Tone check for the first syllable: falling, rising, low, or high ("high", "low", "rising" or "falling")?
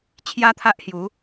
high